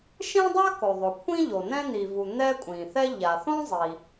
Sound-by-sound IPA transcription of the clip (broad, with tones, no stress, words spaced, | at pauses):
ʃẽ˥dˤa˥ko˩ðˤo˩ kʷʰĩ˥ʎo˩ nɛ̃˥n̪i˩vu˩ n̪ɛ˥kʷʼĩ˩θɛ˥ ʎa˩θõ˥ zˤi˩